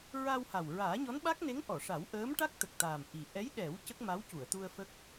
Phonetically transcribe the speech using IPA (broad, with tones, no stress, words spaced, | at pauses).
ɹa˧wha˨˩w ɹaː˨˩˦ɲɔ˧˥nɓa˦˥k̚ne˧˥ŋ ʔɔ˨˩˨ʂa˨˩˦wʔəː˧˥m ʈa˦˥k̚t̪ə˨˩k̚t̪aː˨˩m ʔi˨˩ ʔɛ˧˥jɗɛ˨˩˦w cə˦˥k̚ma˧˥wcu˨˩˨ə̯t̪u˧ə̯ fə˦˥k̚